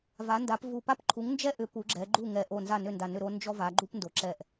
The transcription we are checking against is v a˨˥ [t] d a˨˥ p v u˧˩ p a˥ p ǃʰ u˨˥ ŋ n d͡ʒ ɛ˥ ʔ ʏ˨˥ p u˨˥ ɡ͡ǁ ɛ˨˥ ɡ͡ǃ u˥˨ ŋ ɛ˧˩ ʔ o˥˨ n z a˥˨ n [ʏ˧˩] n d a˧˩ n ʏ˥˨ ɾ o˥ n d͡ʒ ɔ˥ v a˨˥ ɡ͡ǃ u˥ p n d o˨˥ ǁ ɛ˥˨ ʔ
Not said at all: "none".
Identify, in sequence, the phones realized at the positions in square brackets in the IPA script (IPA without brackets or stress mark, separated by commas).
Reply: n, ʏ˥˨